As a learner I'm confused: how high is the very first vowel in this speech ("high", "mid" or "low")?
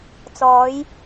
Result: mid